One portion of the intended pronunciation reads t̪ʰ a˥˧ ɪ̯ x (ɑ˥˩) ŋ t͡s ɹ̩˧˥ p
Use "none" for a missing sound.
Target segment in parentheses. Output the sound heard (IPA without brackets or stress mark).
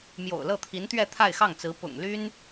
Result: ɑ˥˩